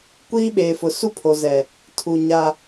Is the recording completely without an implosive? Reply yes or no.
no